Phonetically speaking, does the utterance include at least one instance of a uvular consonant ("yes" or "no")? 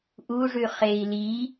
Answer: yes